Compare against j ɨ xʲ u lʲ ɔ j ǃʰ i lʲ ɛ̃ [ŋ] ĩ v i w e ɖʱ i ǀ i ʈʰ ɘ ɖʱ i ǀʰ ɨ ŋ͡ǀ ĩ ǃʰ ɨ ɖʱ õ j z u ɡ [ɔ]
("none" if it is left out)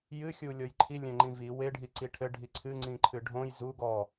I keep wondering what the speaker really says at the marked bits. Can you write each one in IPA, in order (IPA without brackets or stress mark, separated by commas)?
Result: ŋ͡ǃ, ɔ